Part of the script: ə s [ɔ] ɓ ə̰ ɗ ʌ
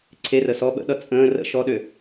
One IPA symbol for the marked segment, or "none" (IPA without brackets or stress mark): ɔ